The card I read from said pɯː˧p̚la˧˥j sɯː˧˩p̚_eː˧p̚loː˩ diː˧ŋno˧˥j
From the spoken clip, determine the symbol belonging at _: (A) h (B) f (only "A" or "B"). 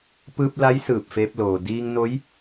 B